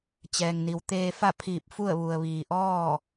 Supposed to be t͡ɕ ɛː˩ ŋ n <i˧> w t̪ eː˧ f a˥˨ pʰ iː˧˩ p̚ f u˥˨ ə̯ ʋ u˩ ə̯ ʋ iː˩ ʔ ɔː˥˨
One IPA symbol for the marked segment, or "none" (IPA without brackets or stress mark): i˩˧